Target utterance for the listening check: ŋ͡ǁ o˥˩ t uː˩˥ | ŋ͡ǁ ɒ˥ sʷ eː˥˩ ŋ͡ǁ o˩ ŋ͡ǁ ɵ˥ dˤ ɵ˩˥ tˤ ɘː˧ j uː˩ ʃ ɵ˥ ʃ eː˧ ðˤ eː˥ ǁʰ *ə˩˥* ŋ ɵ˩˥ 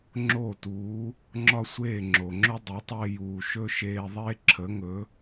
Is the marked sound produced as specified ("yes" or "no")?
yes